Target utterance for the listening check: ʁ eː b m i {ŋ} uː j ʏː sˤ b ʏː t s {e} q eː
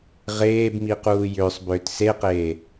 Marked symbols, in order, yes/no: no, yes

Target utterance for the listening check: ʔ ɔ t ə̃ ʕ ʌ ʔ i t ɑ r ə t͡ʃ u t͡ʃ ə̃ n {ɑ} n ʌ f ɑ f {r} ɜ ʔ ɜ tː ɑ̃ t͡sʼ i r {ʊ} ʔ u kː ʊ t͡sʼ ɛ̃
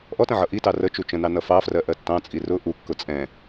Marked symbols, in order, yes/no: yes, yes, yes

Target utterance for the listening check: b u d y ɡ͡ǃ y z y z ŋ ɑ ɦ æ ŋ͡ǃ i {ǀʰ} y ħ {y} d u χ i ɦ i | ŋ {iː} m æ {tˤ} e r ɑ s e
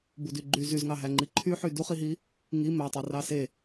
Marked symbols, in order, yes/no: no, yes, no, yes

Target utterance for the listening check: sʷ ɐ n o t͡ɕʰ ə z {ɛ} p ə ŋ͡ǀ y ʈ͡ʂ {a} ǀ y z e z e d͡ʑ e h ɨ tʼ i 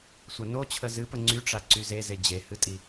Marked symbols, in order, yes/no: no, yes

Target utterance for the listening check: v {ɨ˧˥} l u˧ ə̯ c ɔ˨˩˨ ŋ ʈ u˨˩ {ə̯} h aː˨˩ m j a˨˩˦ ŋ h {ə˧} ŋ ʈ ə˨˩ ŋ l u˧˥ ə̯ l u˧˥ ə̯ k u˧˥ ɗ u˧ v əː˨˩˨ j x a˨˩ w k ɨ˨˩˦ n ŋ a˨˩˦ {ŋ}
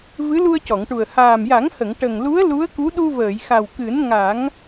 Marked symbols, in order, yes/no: yes, yes, no, yes

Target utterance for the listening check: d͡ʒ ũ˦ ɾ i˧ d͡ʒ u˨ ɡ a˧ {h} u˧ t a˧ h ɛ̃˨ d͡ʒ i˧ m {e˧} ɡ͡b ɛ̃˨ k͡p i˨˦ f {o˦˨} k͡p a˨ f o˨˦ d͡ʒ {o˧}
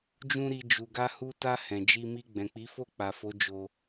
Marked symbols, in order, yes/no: yes, no, yes, yes

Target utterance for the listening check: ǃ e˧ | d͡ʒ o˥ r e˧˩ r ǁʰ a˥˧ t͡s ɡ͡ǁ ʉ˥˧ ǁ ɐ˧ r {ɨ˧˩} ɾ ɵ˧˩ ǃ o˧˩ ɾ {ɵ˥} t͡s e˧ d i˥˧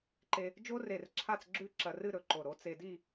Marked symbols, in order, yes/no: no, no

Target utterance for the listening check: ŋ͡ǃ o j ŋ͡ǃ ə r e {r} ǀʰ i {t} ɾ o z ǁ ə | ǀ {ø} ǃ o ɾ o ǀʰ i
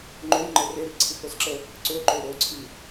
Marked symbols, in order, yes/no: yes, yes, yes

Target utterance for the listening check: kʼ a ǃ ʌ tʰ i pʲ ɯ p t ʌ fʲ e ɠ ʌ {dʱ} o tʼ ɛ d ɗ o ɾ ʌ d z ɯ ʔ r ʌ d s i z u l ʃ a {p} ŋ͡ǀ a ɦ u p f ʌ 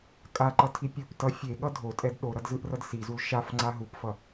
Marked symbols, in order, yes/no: yes, no

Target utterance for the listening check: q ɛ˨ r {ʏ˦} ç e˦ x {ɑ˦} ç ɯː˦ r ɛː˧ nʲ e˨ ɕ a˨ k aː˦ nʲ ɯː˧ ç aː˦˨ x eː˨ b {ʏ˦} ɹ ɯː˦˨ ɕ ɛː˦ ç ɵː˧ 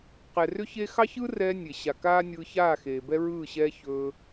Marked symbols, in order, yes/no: yes, yes, no

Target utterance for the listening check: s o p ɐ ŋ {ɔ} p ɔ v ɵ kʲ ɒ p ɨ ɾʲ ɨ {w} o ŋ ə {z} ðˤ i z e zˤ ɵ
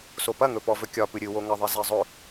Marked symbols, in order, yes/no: no, yes, no

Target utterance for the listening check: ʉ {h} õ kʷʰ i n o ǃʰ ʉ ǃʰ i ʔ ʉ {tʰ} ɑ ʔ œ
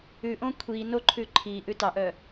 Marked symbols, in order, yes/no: no, no

